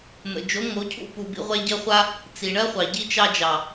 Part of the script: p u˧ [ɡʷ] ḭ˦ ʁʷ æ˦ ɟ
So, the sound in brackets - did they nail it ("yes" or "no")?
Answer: no